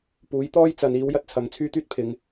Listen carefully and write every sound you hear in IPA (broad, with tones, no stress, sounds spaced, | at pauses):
p uː˨˥ j t̪ ɔː˥ j t͡s ɐ˨˧ n iː˨˥ w j ɐ˥ t̚ t͡sʰ ɐ˨˧ ŋ t͡sʰ yː˥ t̪ yː˥ t̚ pʰ ɪ˨˧ ŋ